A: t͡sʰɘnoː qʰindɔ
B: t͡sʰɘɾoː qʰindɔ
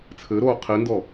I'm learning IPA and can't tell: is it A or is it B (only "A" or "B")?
B